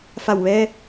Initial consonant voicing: voiceless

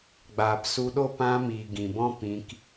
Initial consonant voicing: voiced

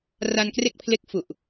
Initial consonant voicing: voiced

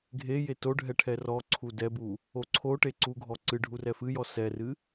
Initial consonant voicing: voiced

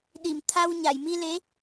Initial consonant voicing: voiced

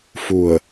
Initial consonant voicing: voiceless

